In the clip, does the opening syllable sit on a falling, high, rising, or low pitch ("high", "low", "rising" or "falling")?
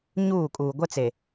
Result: falling